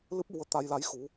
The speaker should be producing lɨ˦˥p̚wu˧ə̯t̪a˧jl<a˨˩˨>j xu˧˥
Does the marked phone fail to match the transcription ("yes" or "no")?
yes